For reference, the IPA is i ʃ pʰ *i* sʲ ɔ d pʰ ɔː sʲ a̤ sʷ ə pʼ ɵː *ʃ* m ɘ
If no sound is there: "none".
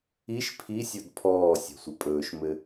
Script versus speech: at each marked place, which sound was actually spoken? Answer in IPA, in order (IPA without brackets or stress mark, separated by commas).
i, ʃ